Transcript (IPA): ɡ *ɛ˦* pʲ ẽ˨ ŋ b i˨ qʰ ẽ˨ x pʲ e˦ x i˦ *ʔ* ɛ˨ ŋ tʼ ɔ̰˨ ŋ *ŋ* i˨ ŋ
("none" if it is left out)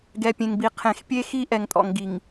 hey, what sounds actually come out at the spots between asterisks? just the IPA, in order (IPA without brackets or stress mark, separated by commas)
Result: ɛ˨, ʔ, ɡ